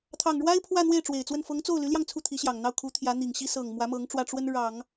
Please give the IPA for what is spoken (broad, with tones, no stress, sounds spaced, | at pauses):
t̪ʰ ɑ˨˩ ŋ ɻ w a˥ ɪ̯ pʰ w ä˥˧ n̪ w e˥˩ ɪ̯ ʈ͡ʂ w e˨˩ ɪ̯ t͡s w ə˥˩ n f ɤ˧˥ ŋ t͡s o˥˩ ʊ̯ l y˧˥ l j ɑ˧ ŋ t͡sʰ u˥˩ t̪ʰ i˧˥ ɕ j ɑ˨˩ ŋ n̪ ɑ˥˩ ʊ̯ kʰ u˧˥ t̪ʰ j ä˧˥ n̪ i˨˩ ŋ ɕ i˥ s ɤ˨˩ ŋ m w ä˧˥ m ɤ˧˥ ŋ ʈ͡ʂ w ä˥˩ ʈ͡ʂ w ə˥ n ɻ ɑ˨˩˦ ŋ